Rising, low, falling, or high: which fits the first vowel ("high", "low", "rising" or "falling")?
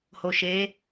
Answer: low